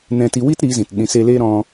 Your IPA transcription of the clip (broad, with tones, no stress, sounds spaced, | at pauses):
n ɛ̃˧ t i˧ w i˦ t ɾ iː˨˦ z ĩ˨ t ɗ ĩ˨ s e˧ l eː˦ ɾ ɔ̃˧